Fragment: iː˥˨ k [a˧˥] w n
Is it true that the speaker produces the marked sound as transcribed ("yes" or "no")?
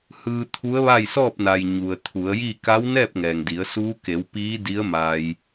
yes